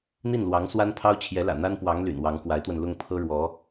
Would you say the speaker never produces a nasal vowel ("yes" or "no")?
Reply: yes